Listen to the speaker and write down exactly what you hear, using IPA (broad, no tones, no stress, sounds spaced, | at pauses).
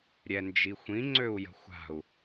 ɾʲ ɛ n d͡ʒ i xʷ ĩ ŋ͡ǀ ø u̯ j ə̤ xʷ a̤ u̯